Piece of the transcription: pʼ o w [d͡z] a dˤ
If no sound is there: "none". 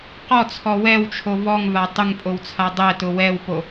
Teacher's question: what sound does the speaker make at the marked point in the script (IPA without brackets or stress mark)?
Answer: t͡sʰ